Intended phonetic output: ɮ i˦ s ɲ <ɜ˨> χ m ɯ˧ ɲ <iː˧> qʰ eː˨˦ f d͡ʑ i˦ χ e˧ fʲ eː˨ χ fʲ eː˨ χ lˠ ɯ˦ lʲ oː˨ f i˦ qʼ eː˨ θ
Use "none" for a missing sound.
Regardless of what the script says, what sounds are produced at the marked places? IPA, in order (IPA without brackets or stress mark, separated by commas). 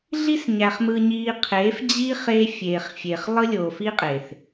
æ˨, iː˧